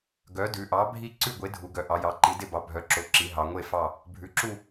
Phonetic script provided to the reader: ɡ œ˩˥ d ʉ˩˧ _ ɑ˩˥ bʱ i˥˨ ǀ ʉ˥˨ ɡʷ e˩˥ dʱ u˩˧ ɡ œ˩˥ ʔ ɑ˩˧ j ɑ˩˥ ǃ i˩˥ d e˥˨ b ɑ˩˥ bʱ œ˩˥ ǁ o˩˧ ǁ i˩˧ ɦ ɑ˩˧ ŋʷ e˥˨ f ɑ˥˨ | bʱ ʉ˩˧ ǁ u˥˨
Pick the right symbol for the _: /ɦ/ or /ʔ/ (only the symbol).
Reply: ʔ